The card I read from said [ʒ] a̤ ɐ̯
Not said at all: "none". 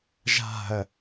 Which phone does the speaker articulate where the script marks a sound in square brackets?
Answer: ʒ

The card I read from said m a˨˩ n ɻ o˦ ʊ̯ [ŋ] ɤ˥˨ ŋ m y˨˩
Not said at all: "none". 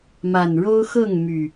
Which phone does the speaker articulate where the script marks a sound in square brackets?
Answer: x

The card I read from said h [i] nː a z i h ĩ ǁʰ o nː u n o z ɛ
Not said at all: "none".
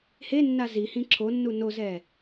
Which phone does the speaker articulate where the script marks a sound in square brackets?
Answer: e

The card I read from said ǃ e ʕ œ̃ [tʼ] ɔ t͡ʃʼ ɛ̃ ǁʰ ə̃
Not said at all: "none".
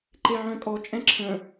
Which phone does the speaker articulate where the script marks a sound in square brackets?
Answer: kʼ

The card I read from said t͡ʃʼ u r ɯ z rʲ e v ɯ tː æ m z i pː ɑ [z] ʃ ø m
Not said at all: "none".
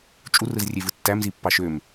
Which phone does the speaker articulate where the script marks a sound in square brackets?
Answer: none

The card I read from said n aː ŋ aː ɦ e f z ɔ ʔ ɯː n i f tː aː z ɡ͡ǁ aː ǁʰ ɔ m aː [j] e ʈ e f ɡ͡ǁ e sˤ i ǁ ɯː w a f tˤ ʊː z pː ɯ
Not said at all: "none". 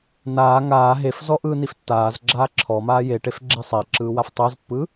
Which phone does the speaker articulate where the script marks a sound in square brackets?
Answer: j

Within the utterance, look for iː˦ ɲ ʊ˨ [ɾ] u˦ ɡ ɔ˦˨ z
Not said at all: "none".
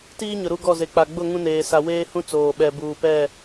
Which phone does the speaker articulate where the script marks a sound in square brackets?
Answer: ɾ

